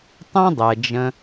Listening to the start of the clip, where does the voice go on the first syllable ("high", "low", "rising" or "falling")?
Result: high